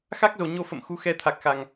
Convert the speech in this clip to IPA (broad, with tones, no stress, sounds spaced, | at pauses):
x a˦˥ k̚ z o˨˩ ɲ o˧ f ə̰˧˨ m x u˨˦ x ɛ˧ t̪ʰ a˨˩ k̚ x a˨˩ ŋ